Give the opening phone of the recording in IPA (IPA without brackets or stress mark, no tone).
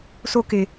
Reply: s